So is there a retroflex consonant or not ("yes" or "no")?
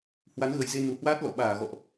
no